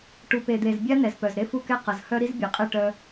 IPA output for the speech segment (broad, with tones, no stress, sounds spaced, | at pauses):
ʈ u˨ p e˨ d̪ e˨ z bʲ a˦ n ɛ˨ z p œ˨ z ɾ e˦ f u˦ k ɛ˦ q ʌ˨ z h œ˦ ɾ i˦ z bʲ ɛ˨ qʼ ɛ˦˨ ʈ œ˦